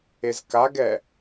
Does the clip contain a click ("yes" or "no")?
no